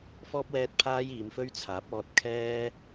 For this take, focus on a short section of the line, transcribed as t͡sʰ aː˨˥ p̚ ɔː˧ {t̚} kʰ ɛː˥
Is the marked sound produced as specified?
yes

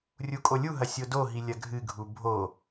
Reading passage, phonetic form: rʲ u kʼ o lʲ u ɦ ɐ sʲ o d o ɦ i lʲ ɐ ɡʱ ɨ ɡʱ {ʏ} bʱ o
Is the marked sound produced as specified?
no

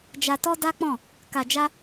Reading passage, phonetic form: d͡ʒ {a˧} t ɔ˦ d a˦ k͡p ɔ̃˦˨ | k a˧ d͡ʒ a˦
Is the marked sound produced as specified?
yes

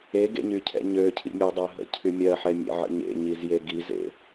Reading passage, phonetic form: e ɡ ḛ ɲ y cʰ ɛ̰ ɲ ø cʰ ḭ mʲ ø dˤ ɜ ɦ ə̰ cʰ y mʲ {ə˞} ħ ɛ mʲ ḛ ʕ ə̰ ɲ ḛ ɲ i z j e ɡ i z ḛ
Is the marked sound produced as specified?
no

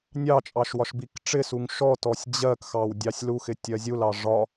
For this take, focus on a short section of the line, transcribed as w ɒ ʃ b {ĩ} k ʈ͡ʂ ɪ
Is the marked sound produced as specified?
no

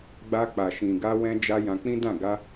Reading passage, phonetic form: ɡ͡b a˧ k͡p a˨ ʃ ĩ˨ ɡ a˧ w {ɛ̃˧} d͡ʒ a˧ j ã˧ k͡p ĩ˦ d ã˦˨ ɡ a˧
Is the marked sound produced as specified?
yes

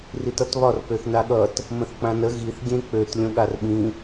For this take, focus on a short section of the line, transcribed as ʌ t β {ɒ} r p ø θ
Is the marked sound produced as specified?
yes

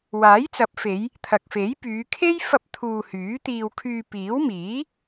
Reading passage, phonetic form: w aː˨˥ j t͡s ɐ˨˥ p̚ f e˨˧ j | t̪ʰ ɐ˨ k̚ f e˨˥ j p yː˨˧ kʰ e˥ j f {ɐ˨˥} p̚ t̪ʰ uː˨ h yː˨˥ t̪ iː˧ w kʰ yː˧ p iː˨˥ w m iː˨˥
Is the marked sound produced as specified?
no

